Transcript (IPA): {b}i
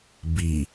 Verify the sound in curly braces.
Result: correct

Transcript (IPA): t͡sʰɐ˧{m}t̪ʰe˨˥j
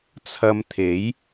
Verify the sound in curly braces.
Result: correct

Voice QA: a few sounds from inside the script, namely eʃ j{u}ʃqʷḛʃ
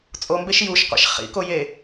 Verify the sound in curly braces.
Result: correct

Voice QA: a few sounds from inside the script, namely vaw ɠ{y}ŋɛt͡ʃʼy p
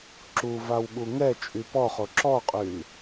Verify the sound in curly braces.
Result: incorrect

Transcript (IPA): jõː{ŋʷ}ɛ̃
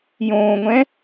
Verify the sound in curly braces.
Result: correct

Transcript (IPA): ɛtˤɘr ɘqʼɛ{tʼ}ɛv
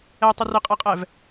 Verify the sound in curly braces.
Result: incorrect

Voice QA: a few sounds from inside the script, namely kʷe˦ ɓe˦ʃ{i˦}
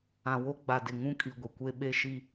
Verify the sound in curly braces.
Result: correct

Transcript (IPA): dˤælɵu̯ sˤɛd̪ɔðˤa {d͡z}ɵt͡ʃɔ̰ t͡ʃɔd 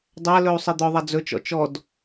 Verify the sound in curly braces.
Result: correct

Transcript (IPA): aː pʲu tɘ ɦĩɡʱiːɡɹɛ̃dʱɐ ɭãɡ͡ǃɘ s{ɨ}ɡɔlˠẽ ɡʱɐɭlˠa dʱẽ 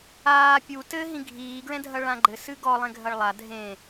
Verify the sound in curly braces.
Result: correct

